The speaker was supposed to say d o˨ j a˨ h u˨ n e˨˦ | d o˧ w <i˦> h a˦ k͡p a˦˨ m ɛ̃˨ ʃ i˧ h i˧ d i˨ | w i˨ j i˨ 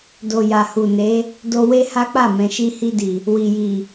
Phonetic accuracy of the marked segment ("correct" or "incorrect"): incorrect